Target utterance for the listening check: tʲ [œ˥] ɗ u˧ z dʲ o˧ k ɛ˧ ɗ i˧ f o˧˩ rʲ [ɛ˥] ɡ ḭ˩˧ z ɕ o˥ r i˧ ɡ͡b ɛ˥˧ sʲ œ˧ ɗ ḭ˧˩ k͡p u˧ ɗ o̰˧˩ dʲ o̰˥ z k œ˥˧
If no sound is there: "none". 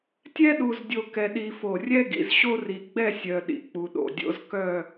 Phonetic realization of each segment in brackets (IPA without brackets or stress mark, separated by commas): ɛ˥, ɛ˥